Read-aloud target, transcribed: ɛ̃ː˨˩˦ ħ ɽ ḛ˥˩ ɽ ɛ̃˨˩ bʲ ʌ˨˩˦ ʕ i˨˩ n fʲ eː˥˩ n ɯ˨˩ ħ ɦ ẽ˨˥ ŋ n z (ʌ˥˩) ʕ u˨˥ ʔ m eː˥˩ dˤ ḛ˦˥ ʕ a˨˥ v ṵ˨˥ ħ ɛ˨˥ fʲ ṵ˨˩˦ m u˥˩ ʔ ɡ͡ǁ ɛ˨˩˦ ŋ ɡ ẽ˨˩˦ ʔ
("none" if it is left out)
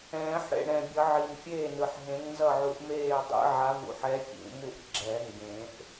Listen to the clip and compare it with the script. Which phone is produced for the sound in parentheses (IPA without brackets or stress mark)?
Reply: ʌ˥˩